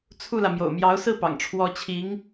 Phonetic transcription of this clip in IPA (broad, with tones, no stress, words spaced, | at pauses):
t͡sʰu˥˩lä˩ mjo̰˨˩ʊ̯mjɑ˧˥ʊ̯sɹ̩˥˩pɑ̰˨˩ŋ ʈ͡ʂʰwɔ˧˥t͡ɕʰi˧˥ŋ